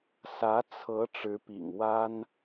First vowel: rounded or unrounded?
unrounded